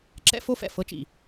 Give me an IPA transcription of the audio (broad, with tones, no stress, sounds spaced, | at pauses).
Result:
ǁ ɛ̰˦ f o˦ f ɛ̰˨ f ɤ˦ t͡ʃ ḭ˨